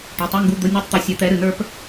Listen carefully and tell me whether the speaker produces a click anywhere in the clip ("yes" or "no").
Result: no